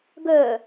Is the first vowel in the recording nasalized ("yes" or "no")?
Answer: no